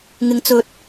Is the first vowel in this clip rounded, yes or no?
no